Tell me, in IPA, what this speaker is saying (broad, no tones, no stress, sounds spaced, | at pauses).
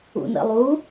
ṵ n ə̰ lˠ u